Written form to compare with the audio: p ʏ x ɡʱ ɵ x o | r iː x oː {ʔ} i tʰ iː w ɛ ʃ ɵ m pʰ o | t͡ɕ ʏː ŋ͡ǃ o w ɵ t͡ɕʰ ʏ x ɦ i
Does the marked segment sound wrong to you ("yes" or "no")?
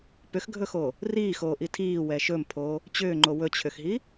no